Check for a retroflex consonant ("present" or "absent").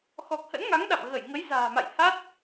absent